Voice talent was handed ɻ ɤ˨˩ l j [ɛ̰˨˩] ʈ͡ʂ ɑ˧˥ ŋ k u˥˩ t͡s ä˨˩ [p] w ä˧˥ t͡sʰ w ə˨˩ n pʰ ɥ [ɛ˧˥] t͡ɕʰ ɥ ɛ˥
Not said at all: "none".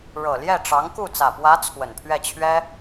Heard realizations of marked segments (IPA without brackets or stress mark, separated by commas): ɛ˥˩, p, ɛ˥˩